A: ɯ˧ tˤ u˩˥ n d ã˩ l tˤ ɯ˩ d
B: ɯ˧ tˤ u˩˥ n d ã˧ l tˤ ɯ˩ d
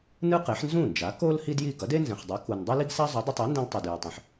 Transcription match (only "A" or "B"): B